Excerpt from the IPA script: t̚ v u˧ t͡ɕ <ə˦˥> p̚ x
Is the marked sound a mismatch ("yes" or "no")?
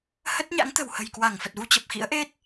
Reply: yes